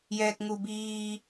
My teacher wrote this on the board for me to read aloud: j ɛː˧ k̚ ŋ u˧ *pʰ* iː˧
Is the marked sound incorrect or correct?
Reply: incorrect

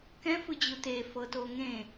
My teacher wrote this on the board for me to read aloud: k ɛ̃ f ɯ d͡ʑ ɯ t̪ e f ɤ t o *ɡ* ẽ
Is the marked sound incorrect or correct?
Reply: incorrect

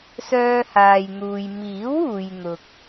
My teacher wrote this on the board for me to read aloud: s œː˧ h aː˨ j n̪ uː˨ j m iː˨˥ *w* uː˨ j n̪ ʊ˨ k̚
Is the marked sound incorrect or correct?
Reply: correct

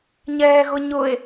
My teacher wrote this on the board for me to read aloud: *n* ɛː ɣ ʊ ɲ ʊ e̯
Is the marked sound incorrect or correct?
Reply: incorrect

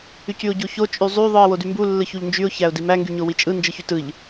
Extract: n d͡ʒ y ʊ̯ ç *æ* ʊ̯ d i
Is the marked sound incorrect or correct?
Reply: correct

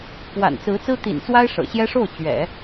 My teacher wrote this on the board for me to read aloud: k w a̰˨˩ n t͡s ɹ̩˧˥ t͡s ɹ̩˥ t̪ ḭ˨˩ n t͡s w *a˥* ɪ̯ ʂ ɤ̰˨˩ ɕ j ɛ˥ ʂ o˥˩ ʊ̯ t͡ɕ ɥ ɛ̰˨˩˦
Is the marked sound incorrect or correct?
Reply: correct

